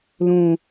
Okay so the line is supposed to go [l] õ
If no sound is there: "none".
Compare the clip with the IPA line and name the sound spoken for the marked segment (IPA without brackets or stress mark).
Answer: l